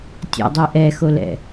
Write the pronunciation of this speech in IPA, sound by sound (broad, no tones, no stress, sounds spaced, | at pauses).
tʲ ɛ̰ dˤ i ʔ ɛ x o l ɛ̰